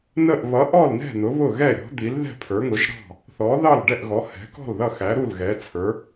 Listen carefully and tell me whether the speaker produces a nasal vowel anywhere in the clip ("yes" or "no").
no